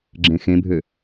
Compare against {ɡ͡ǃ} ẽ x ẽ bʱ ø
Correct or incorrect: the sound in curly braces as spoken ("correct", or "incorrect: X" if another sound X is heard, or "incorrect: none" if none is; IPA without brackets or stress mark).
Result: incorrect: ɡ͡ǁ